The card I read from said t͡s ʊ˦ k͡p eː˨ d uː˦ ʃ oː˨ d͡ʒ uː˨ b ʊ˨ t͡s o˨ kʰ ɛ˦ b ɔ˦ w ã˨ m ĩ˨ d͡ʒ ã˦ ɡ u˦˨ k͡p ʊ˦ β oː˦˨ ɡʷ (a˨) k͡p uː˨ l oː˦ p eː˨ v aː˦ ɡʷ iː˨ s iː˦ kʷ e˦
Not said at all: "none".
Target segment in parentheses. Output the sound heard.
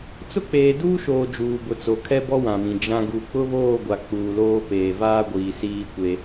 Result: a˨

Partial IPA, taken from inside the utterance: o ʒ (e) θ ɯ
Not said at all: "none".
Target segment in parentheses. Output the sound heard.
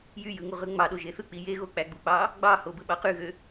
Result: e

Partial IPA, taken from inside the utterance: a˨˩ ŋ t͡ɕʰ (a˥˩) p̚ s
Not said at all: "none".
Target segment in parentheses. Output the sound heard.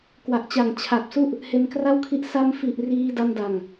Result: a˨˩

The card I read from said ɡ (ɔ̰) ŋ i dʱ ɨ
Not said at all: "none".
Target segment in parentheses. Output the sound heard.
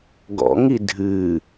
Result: ɔ̰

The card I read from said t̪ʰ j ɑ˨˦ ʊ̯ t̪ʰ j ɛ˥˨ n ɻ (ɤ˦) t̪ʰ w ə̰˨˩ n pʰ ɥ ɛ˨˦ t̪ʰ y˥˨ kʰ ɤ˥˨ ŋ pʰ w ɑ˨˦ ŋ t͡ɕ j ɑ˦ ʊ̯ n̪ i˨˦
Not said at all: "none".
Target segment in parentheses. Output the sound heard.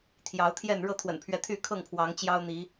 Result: ɤ˥˨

